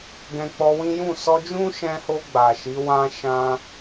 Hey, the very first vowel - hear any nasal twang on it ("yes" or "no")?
yes